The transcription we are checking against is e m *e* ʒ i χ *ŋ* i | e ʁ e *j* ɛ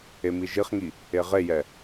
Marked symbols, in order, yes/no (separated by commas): no, yes, yes